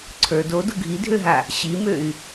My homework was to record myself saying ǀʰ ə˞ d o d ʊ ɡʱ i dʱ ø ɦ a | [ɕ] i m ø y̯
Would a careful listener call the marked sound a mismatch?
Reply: no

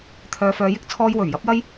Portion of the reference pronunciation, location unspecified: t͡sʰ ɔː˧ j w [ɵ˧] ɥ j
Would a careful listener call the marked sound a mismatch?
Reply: yes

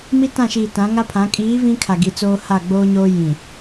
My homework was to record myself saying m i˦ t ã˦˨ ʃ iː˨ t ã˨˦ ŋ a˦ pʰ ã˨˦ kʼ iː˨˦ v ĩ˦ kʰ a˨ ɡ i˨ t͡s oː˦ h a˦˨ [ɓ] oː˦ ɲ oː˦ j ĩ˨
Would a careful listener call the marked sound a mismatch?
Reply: yes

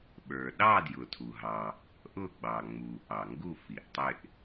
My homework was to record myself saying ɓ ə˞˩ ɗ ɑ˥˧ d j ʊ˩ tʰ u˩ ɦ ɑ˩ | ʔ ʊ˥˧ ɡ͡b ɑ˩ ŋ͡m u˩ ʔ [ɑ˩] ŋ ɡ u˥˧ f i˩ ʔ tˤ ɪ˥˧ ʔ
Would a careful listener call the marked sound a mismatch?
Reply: no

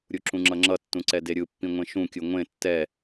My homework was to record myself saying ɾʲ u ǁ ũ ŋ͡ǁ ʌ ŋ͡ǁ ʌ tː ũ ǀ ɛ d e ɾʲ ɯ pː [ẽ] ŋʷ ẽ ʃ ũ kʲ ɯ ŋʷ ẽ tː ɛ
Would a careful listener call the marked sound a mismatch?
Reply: yes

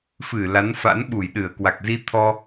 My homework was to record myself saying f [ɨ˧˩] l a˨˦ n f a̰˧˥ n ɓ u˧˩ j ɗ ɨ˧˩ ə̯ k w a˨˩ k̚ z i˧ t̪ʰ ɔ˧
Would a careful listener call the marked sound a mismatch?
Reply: no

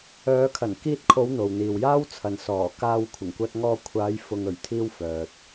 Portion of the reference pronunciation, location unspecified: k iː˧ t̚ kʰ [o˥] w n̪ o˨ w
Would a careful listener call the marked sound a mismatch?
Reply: yes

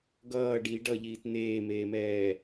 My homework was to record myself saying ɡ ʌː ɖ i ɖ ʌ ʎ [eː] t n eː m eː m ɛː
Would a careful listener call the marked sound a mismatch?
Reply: yes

